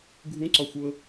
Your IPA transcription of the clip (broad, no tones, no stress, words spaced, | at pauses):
ɡʱũǀɒxʷɤ